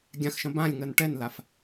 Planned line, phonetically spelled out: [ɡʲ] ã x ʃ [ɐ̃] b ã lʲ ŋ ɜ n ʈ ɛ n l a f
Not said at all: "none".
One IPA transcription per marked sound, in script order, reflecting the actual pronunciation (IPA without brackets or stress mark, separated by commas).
ɡʲ, ɐ̃